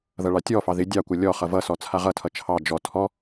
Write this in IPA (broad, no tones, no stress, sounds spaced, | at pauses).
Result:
ð ʌ ɭ ɑ tʲ ɔ f ɑ ð ɪ dʲ ɑ kʷ ʌ lʲ ɔ χ ʌ v ʌ s ɔ t͡sʰ a ʁ ʌ tʰ ʌ t͡ʃʰ ɑ d͡ʒ ɔ tʰ ɔ